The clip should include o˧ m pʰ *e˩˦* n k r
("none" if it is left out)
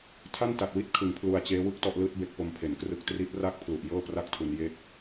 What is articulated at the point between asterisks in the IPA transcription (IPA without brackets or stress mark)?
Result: e˩˦